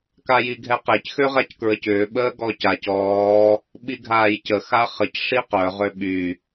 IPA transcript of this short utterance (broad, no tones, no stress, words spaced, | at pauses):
kajiɡʱɛqec xøʁackɹəcʏː ɓəːɡɔcac ɔː | ɓiɡʱaːjcə xaχəc ʂiqœ ʁøɓy